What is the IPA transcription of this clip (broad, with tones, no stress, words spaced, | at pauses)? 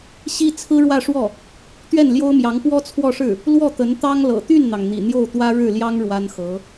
ɕi˥ t͡sʰɹ̩˥ɻwä˥˧ʂwɔ˥˩ | t̪ɥɛ˥˩nljo˥ʊ̯mjɑ˧˥ŋ pwɔ˥t͡sʰwɔ˥˧ʂɻ̩˥˩ | lwɔ˥˩t̪ə˧˥nt̪ɑ˥ŋlɤ̰˨˩ t̪y˥˩nn̪ɑ˩ŋ n̪ḭ˨˩n̪jo˥˩ʊ̯t̪wä˥ ɻɻ̩˥˩ljɑ˥ŋ ɻwa˥nxɤ˧˥